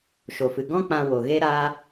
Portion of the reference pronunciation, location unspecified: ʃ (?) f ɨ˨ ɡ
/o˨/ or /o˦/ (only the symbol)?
o˨